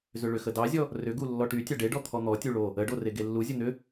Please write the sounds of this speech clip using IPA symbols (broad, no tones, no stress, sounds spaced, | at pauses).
z ʏ ɭ ʏ x ə d ɑ zʲ ɔ | r ʏ ɡ u lː ɔ ʈ y tʲ ɑ ɖ e ɖ ɔ t̪ʰ ɔ n̪ ɔ tʲ u ɭ o | ə ɖ o r e ɡ e lː u zʲ ə n̪ ʏ